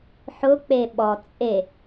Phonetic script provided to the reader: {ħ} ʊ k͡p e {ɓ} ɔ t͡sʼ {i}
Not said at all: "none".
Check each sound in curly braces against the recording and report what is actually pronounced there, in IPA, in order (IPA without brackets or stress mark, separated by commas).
ħ, ɓ, e